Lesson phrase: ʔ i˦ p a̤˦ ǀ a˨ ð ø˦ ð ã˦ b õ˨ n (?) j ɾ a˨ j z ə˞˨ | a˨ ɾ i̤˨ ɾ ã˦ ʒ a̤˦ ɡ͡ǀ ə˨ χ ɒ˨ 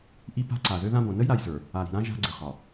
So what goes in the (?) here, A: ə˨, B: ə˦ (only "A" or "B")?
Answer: B